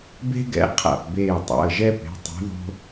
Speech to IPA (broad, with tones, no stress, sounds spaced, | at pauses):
b e̤˦ ɡ ɛ̰˨˦ qʰ a̰˧˩ p b eː˧˩ tˤ a̰˩˧˩ ə̯ ʒ ɛ˦ p e̤˩˧˩ tˤ ṳ˨˦ ð o̤˦